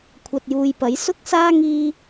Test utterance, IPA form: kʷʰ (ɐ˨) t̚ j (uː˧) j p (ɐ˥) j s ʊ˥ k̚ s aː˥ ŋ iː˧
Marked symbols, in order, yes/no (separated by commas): yes, no, no